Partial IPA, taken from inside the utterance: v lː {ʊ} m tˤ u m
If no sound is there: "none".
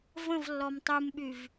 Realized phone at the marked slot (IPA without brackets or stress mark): ɔ